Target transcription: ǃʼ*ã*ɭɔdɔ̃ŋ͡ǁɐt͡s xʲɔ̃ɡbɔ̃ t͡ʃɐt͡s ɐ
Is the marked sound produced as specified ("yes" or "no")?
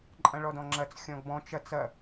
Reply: no